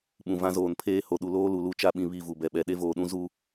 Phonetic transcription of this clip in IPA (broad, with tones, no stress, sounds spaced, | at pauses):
ɓ ũ˨ v ã˦ z oː˨ n pʰ eː˦ h o˨ ɗ u˨ l oː˦ l u˨ l u˦˨ t͡ʃ a˦ ɓ ĩ˨ β i˦˨ v u˨ b ɛ˨ ɓ ɛ˨ ɗ e˦ v oː˨ ɗ ũ˦ z u˦